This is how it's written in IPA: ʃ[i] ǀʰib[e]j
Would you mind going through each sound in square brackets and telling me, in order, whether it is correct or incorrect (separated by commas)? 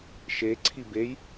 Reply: incorrect, correct